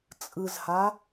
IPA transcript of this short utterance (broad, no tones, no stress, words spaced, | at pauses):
t͡sʼɯzha